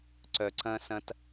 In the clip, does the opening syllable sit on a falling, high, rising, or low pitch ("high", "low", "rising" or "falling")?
low